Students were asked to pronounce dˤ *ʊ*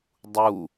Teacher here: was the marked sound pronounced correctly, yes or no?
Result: no